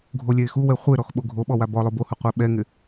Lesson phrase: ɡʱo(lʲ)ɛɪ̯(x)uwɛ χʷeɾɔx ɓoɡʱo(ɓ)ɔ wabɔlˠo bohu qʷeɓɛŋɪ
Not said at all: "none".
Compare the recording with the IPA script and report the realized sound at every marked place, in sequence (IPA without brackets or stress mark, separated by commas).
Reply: lʲ, x, ɓ